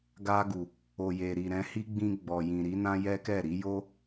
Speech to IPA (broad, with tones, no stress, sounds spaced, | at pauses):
ɡ a˧ ɡ u˨ | o˨ j e˨ ɾ i˨ ɾ ɛ̃˧ h i˦ ɡ͡b ĩ˧ ɡ͡b ɔ˨ j ĩ˨ ɾ i˨˦ n ã˦ j ɛ˦ k ɛ˦˨ ɾ i˨˦ j o˦